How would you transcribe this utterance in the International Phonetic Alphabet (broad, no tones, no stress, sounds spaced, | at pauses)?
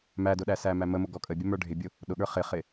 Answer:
m æ d ʊ ɗ æ s æ m æ m ə m ʊ ɡ ɔ kʼ ə bʲ ə m ə˞ ɖʱ ɪ bʲ ʊ | ɗ ʊ ɠ ə˞ χ ɪ χ ɪ